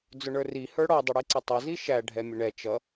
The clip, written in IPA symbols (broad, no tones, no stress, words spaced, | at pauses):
d͡zʊɳə˞ri hə˞ɽɔ dˤuɽiǀʌtˤʌ ziʃæ ɖʱɛmʲʊɳɛ t͡ʃʌ